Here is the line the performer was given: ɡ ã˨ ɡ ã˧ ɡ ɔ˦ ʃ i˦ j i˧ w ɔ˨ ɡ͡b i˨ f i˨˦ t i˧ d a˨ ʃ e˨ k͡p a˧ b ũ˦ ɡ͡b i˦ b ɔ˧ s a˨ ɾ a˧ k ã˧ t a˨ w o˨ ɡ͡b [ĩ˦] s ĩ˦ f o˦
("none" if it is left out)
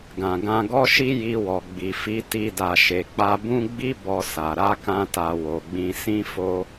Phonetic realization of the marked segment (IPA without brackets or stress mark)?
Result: ĩ˧